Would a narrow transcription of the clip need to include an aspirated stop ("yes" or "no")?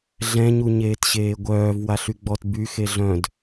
no